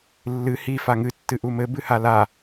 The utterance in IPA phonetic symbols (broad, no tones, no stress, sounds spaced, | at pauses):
lː ɨ h i f a ŋ ɨ tː ɨ ʔ u m ɘ b ɨ h a l a